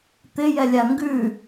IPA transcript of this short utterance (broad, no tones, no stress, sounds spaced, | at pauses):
t̪ ɪ j ɛ lʲ a ŋ ɡ ʉ